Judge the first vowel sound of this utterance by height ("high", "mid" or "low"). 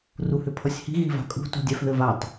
high